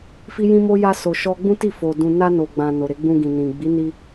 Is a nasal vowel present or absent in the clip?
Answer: present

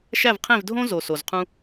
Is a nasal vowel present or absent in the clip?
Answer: present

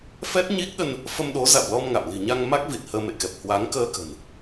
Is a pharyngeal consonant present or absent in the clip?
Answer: absent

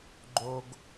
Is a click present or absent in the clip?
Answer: present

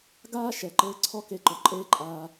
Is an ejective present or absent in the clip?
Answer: present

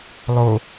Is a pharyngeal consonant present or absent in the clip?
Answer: absent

